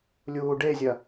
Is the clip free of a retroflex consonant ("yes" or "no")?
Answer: no